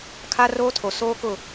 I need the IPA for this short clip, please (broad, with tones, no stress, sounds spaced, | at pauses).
kʰ a˦ r oː˦ tʰ o˨ s oː˦ k ʊ˦˨